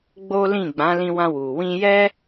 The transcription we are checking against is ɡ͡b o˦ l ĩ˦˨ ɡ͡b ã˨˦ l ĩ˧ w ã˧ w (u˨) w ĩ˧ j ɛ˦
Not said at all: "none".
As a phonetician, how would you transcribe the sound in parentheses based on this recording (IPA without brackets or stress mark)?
u˨